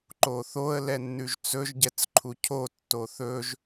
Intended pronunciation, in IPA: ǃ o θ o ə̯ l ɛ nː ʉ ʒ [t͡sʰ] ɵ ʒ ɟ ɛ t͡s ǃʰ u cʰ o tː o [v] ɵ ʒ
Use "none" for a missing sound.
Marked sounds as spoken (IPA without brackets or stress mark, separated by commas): t͡s, θ